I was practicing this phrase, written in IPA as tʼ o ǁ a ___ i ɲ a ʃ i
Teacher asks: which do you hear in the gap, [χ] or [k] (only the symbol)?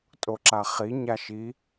χ